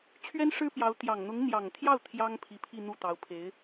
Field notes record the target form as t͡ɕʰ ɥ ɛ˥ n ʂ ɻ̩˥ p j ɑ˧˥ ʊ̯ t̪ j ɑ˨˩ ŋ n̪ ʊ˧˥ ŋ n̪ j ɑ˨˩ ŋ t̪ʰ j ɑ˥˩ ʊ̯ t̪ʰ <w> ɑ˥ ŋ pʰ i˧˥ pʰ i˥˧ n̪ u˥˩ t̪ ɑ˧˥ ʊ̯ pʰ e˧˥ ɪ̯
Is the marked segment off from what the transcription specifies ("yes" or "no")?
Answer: yes